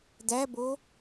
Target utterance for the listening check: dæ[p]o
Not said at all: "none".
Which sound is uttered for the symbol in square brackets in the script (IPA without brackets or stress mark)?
b